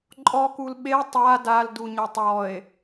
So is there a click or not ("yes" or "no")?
yes